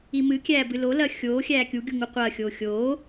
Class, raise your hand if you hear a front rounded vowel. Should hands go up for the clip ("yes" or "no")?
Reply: no